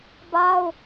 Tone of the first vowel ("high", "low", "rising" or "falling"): high